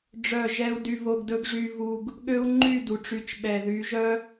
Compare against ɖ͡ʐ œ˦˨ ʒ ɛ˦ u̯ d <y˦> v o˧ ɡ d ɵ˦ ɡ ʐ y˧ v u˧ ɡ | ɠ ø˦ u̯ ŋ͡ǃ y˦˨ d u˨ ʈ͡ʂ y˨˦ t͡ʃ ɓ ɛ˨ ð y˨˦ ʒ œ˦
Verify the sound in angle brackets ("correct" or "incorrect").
incorrect